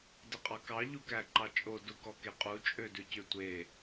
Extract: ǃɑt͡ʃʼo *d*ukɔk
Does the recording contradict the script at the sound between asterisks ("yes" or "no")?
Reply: no